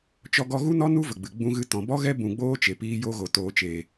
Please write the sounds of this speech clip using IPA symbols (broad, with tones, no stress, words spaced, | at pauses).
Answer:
t͡ʃɔ˦ɡɔ˦ ɣu˦nɔ˦ nu˦ və˨ɡ͡bɨ˨ ɡ͡bũ˦ ɣɨ˧tɔ̃˨ bɔ˦ɣɛ˦ bũ˧ɡ͡boː˦t͡ʃe˨ piː˧jo˧ɣo˨ toː˨t͡ʃeː˨